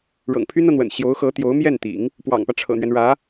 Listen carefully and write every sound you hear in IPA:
ɻ ɤ̰˨˩ ŋ pʰ y˥ n ɤ˨ n̪ w ə̰˨˩ n ɕ j o˧˥ ʊ̯ x ɤ˧˥ t̪ j o˧˥ ʊ̯ m j ɛ˥˩ n t̪ ḭ˨˩˦ ŋ | p w ɑ̰˨˩ ŋ p ä˦ ʈ͡ʂʰ ɤ̰˨˩ n̪ ɥ ɛ˦ n ɻ ä˧˥

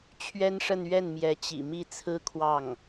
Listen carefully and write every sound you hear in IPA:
t͡ɕʰ ɥ ɛ˥ n ʂ ə˥˧ n ɥ ɛ˥˩ n m j ɛ˧˥ t͡ɕ ḭ˨˩ m i˥˩ t͡sʰ ɹ̩˥ kʰ w ɑ˥˩ ŋ

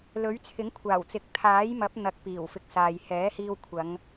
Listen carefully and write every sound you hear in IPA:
l ɵ˨˥ ɥ t͡sʰ ɪ˨˥ ŋ kʷʰ aː˨˩ w t͡s ɪ˨ k̚ t̪ʰ aː˨˥ j m ɐ˨˥ p̚ n̪ ɐ˨˥ k̚ p iː˨˩ w f ɪ˨ k̚ s aː˨ j h ɛː˨˥ h iː˧ w kʷʰ ɐ˨˧ ŋ

